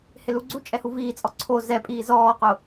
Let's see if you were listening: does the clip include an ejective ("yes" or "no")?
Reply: yes